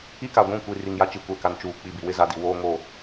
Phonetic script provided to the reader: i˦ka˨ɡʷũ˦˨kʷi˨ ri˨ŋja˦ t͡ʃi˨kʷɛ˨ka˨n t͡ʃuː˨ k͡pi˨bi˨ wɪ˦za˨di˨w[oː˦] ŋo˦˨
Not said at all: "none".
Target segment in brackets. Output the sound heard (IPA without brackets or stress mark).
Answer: oː˦